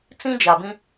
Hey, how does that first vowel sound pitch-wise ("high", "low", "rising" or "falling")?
high